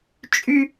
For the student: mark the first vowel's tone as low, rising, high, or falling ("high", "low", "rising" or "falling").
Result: high